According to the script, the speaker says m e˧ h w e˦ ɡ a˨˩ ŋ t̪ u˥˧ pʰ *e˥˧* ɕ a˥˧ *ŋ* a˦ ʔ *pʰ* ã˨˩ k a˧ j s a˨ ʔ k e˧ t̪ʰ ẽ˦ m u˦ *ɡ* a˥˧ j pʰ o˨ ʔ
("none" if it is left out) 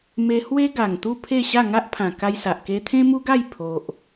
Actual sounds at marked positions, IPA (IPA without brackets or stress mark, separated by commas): e˥˧, ŋ, pʰ, ɡ